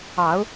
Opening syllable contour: rising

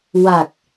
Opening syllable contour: low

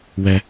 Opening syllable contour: high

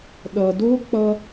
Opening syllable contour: low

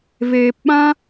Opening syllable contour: low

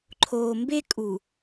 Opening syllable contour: low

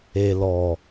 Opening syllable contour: low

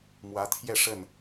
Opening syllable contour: rising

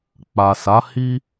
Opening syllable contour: low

